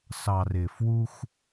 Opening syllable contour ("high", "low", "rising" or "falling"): low